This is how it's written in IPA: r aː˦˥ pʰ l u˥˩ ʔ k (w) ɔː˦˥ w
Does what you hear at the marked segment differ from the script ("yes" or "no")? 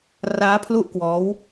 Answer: no